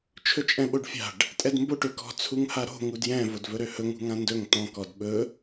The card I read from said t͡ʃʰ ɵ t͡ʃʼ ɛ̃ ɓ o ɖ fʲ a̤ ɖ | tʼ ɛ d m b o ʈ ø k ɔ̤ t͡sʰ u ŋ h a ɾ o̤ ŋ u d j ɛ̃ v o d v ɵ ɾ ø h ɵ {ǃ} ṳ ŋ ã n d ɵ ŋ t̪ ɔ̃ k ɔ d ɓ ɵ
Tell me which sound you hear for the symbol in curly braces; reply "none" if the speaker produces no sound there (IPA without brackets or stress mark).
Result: ŋ